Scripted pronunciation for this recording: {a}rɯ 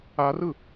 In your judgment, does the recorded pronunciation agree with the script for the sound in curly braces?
yes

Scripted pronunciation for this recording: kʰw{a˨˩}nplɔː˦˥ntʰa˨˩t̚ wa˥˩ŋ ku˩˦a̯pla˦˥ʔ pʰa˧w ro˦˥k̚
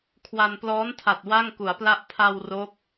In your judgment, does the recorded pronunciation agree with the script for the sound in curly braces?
no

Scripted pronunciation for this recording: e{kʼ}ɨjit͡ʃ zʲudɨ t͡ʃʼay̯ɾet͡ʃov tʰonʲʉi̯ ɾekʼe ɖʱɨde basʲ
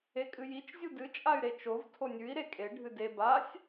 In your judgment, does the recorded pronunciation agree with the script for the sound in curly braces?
yes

